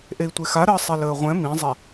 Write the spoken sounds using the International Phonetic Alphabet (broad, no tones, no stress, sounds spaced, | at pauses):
ʔ e i̯ tʷ e x a ɾ əː sˤ e l əː ʁʷ ɛ̃ m ĩ zˤ ɛ